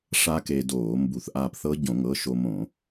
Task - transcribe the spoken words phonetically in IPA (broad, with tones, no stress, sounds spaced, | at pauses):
ʂ a˦˥ k e˧ d oː˧˩˧ m b u˧˩˧ θ ʔ aː˧ p θ ɤ˦˥ ɟ õ˧˩˧ ŋ ɤ˩˧˩ ʃ o˧ m õ˧˩˧